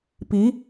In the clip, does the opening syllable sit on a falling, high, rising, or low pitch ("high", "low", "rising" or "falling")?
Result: rising